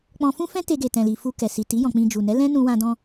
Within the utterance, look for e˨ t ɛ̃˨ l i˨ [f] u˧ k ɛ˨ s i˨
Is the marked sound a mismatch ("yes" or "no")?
no